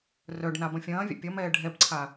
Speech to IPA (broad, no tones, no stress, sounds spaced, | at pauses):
r œ ɖ n a b ɐ̃ fʲ ɐ̃ː vʲ a̰ pʲ ɐ m ɛː ɖʱ ɛ b ǀʰ a